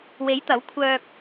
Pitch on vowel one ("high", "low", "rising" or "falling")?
rising